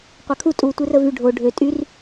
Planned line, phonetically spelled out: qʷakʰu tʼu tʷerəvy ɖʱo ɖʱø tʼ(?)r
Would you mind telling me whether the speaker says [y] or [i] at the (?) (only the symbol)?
y